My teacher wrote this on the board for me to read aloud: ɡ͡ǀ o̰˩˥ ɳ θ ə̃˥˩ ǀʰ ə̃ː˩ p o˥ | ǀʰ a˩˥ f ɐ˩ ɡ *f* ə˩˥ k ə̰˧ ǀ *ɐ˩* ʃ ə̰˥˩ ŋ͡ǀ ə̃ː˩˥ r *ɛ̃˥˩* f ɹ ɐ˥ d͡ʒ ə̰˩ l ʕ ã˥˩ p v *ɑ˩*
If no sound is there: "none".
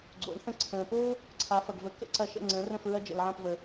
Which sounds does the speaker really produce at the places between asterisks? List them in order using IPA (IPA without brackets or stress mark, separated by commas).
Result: v, ɐ˧, ə̃˥˩, ə˩